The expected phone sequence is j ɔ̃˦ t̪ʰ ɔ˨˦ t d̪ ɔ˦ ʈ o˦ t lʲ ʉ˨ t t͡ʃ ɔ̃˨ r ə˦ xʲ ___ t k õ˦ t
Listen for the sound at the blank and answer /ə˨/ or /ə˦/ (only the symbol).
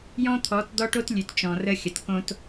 ə˨